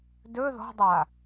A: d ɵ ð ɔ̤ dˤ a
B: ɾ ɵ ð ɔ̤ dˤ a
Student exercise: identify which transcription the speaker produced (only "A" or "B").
A